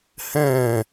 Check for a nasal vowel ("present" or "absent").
present